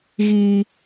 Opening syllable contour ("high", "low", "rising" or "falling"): high